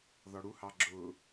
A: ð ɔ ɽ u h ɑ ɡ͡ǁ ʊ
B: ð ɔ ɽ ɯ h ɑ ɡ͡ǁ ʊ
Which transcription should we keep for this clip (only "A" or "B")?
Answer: A